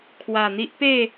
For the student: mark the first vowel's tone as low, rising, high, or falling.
low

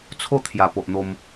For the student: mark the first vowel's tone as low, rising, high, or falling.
falling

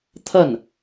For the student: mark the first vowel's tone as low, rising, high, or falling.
falling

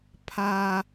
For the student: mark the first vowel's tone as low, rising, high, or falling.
high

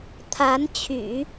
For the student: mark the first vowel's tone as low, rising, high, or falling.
rising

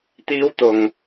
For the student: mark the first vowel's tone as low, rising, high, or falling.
high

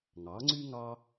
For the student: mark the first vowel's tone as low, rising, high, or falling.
rising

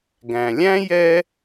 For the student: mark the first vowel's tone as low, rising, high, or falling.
low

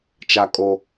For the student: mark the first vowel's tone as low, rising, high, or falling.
high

